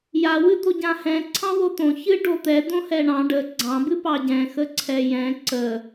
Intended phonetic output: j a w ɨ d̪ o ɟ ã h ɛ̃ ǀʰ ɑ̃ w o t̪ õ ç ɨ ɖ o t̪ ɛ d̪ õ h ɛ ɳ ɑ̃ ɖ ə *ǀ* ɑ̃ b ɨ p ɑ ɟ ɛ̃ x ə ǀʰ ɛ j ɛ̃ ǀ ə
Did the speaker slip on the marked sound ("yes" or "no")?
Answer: yes